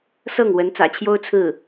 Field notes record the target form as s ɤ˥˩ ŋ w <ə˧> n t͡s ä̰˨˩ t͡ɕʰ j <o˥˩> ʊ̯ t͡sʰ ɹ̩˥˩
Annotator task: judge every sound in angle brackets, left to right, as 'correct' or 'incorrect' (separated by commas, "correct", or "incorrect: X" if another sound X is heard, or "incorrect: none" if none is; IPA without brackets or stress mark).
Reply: incorrect: ə˧˥, incorrect: o˥